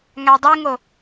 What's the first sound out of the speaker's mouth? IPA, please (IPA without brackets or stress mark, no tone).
ŋ